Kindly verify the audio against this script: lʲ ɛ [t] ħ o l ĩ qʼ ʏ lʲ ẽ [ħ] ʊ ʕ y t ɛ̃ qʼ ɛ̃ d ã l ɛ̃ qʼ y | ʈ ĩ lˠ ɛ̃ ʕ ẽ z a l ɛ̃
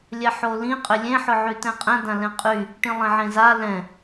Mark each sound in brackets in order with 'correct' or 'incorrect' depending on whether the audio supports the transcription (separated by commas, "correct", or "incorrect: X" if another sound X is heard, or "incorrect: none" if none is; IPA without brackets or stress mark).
incorrect: none, correct